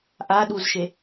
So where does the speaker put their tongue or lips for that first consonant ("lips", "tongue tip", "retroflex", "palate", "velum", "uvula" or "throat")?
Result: throat